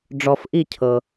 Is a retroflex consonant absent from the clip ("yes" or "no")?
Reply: no